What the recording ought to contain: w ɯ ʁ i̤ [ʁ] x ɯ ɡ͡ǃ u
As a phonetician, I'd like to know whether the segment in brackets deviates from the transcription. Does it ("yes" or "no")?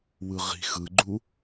yes